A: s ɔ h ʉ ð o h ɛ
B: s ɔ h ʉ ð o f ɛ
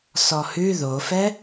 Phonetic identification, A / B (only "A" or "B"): B